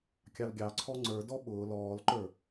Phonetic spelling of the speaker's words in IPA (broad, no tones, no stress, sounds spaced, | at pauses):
kʲ ɑ l ɡʲ ɑ ǀʰ ɔ ŋ͡ǀ ə˞ d ɔ ɓ ʊː l ɔː l ǃ ə˞